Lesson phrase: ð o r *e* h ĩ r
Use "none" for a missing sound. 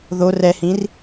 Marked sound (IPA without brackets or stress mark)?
ɛ